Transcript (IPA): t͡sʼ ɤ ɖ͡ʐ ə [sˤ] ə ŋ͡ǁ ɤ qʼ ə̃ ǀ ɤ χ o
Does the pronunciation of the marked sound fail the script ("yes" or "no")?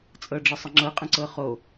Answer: no